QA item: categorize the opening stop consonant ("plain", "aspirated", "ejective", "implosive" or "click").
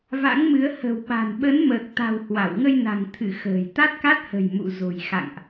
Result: implosive